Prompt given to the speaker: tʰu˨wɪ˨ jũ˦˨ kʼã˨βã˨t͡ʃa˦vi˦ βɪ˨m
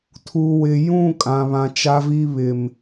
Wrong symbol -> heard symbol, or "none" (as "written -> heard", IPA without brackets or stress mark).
none